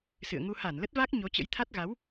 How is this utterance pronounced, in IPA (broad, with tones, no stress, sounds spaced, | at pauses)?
s ɨ̰˧˨ ə̯ ŋ u˧ h a˧˩ n l ə˦˥ t̚ v a˦˥ k̚ ɲ o˨˦ t͡ɕ ə̰˧˥ j t̪ʰ a˦˥ t̚ ɣ a˨˦ w